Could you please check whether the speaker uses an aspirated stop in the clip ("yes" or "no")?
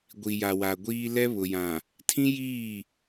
yes